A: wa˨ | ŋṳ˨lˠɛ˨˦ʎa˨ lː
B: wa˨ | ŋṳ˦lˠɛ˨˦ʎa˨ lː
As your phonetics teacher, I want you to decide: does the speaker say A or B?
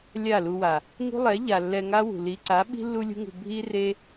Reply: B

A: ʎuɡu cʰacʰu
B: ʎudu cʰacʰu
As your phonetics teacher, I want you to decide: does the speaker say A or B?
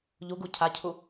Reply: A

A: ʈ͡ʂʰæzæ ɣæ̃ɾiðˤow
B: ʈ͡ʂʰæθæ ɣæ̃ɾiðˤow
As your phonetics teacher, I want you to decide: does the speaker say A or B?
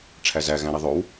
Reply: A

